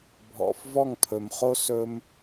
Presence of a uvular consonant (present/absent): present